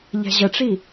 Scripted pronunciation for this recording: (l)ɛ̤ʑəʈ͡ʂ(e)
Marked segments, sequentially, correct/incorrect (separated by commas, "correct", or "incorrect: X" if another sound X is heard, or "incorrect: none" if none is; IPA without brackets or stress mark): incorrect: ʎ, incorrect: i